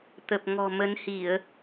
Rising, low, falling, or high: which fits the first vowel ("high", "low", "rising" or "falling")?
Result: low